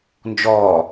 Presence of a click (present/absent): absent